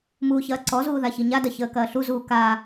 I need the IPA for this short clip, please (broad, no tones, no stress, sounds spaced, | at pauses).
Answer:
m uː ç ɐː ǀ ɔ z uː ð a ç i ɲ a d ɐ ç əː k ɐː ɬ u z uː k a